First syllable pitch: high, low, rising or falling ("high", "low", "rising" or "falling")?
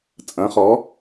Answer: rising